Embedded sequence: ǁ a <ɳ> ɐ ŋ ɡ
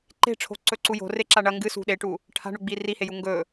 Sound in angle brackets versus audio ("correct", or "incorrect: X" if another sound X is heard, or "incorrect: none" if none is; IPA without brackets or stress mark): correct